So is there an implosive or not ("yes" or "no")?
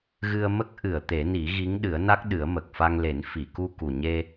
yes